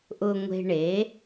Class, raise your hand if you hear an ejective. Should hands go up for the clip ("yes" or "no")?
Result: no